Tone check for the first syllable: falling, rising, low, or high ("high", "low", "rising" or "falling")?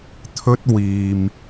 high